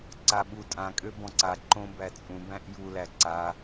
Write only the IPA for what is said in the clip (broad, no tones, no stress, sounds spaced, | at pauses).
ǀ a ɓ u tʼ ã kʼ ø b ɔ̃ ǀ a ǃ õ b æ t͡sʼ ũ b æ̃ ʔ j u l æ ǀ a